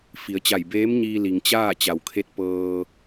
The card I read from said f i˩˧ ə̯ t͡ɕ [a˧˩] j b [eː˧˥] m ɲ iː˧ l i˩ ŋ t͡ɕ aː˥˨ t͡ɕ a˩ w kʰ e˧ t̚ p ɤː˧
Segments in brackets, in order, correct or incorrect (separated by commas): correct, correct